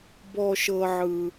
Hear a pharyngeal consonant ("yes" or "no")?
yes